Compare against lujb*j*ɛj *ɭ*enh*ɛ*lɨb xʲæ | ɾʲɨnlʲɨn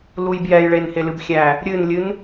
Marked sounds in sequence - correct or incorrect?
correct, correct, incorrect

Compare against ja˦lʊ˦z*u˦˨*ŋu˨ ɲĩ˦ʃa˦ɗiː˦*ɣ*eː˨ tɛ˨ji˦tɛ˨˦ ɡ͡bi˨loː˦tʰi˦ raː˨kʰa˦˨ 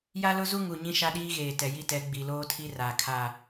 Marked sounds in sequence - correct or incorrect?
incorrect, correct

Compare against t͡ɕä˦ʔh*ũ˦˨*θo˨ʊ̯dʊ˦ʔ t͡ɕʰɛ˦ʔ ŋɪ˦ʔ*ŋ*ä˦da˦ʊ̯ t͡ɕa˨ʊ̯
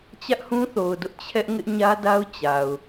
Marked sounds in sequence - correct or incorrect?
incorrect, incorrect

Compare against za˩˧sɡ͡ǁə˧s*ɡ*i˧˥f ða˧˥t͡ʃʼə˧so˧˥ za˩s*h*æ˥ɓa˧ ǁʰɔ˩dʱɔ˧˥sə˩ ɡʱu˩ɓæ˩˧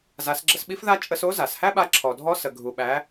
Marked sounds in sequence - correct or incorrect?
incorrect, correct

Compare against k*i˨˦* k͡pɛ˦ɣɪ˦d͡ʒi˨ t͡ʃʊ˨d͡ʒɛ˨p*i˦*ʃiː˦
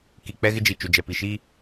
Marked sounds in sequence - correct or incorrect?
incorrect, incorrect

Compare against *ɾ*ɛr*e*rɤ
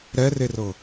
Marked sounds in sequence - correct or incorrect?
correct, correct

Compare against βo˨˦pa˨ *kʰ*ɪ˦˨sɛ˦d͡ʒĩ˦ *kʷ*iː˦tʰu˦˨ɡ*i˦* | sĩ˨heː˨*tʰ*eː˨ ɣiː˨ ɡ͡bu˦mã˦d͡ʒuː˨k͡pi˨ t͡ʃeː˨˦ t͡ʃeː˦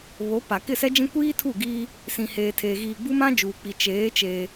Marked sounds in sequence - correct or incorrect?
incorrect, correct, incorrect, correct

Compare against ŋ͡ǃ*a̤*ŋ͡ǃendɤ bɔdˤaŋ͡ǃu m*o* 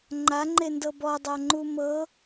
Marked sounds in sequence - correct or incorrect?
incorrect, incorrect

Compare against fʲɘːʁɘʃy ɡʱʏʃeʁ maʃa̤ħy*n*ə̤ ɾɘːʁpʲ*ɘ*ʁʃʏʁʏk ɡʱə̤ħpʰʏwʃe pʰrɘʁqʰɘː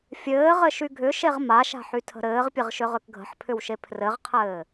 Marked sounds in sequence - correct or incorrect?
incorrect, correct

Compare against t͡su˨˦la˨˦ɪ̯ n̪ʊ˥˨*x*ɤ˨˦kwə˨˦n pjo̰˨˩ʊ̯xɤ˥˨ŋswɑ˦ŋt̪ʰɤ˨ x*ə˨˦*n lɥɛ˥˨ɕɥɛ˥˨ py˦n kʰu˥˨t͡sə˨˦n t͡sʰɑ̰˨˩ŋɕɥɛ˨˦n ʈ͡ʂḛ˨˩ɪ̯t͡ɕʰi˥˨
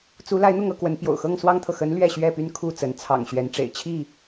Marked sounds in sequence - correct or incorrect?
incorrect, correct

